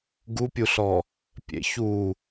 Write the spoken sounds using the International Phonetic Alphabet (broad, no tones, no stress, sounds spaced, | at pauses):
ɡ u pʲ u ɬ ɔ | pʲ ḛ ç u